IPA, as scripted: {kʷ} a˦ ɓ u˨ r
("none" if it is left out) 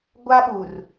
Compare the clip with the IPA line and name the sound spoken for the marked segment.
ɡʷ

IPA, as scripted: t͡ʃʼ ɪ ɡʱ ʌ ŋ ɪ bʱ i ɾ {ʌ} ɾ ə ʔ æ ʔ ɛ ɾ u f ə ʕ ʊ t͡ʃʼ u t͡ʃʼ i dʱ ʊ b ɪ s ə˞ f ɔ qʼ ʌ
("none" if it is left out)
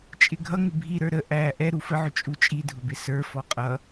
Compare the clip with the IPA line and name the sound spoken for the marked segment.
ə˞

